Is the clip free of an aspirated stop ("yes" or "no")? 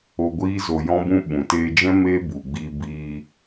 yes